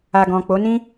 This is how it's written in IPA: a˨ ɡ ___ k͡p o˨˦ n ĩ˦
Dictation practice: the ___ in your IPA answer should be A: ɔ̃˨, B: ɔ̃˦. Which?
A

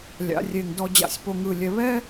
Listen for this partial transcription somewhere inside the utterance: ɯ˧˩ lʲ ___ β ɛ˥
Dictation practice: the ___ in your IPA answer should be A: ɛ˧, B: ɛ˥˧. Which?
A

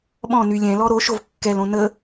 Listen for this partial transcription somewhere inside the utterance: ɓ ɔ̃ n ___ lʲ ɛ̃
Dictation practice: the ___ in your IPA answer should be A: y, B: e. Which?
A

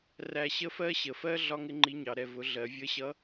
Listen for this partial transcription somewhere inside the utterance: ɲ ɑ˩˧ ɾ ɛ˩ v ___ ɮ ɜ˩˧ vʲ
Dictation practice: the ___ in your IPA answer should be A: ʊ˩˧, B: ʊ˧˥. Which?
A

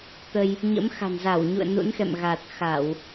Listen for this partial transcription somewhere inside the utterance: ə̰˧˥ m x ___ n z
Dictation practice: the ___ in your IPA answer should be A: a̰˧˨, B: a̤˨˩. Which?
B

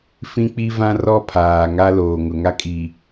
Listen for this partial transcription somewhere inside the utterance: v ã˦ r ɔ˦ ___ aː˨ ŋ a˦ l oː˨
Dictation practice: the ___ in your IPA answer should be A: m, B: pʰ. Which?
B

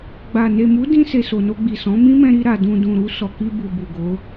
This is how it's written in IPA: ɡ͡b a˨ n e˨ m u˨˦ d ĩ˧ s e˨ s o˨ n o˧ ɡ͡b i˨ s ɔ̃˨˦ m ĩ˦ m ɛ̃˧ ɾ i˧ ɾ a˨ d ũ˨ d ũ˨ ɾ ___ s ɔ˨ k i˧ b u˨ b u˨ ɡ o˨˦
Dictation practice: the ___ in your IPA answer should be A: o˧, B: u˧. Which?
B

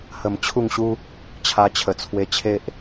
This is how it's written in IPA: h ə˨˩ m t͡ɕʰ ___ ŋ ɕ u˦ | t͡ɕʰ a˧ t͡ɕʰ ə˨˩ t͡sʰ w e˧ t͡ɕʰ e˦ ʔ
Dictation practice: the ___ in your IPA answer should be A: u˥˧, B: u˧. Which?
A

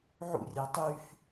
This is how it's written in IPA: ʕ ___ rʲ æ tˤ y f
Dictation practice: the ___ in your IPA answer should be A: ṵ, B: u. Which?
A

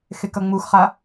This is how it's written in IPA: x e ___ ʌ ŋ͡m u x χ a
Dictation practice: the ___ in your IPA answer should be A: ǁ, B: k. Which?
B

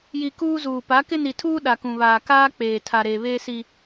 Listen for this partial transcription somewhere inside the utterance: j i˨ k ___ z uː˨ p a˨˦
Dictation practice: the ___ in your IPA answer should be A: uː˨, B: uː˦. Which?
B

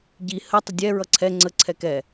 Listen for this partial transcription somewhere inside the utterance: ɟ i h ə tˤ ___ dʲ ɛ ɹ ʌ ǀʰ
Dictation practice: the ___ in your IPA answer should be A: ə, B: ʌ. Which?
A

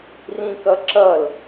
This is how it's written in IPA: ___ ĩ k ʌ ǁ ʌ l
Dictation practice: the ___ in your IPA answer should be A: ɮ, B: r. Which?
B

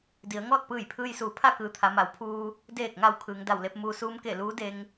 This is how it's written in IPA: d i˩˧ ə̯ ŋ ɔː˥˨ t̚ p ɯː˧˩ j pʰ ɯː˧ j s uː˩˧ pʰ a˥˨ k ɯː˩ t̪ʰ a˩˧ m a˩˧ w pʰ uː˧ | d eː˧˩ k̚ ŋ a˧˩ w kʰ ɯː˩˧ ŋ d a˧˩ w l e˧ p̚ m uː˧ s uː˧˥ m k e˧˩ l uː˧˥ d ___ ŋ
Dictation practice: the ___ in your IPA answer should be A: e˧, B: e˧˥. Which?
A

